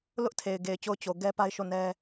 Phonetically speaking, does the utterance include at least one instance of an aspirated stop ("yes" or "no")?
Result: yes